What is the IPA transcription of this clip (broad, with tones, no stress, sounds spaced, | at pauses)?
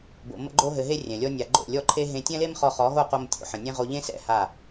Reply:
b o̰˨ m ə̰˧ ɡ͡ǃ o˧ ɦ ɘ˨ ɦ e˧ rʲ ɛ̃˨ lʲ ɔ˦ nʲ a˧ ɡ͡ǃ o̰˦˨ lʲ ɔ˦ ǃʰ e˦ ɦ ẽ˧ tʲ ɛ̃˦ l e˦ m χ ɔ˧ χ ɔ˨˦ ɦ o˦˨ q o˧ m tʲ o̰˦ ħ ə̃˨ nʲ ẽ˦ ʁ o˧ ʎ ẽ˦ s ɛ̰˦˨ h a˦˨